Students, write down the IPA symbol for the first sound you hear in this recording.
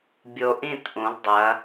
bʲ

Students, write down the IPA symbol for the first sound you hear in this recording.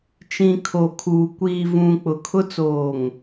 t͡ʃ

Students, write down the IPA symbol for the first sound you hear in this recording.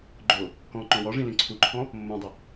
ɡ͡ǃ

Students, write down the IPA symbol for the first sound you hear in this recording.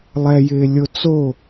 lˠ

